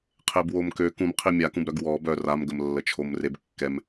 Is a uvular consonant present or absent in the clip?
present